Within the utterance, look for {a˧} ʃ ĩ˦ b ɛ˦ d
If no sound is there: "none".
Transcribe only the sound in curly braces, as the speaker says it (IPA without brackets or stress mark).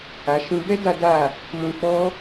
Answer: a˧